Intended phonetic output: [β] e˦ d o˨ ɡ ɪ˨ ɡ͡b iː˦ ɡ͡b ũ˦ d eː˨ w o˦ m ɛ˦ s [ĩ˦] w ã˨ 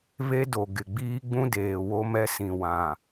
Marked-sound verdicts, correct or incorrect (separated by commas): correct, incorrect